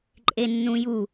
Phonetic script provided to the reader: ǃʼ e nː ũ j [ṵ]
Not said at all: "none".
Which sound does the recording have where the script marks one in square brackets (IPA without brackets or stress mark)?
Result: u